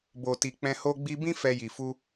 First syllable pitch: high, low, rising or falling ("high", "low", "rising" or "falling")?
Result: low